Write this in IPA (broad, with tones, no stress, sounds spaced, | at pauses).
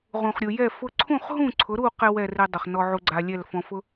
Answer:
ʁ ũ˩ χ ɾʲ u˩ j ɛ˥˩ f ʊ˥ ǀʰ ũ˥˩ χ ɦ ũ˥˩ ǀʰ ʊ˩˥ ɾ u˥˩ q ɛ˥ w ɛ˥˩ r e˧ dˤ ʊ˩ χ n ɔ˧ ʕ u˧ ɡ͡ǀ a˧ lʲ ɛ˥˩ l f ɔ̃˧ f ʊ˥